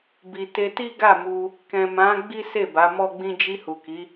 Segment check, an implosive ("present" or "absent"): absent